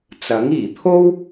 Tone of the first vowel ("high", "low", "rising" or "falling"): rising